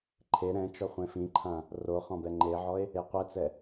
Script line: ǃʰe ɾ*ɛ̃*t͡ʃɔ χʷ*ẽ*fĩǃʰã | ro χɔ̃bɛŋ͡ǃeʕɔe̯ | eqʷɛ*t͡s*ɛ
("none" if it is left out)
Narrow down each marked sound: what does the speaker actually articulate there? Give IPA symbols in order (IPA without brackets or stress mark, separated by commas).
ɛ̃, ẽ, t͡s